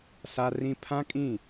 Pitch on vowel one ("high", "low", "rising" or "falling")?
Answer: high